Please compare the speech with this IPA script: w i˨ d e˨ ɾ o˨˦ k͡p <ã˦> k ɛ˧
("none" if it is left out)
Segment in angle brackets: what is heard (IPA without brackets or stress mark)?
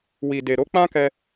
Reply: ã˦